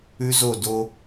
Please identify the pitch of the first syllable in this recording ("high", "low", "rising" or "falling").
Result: high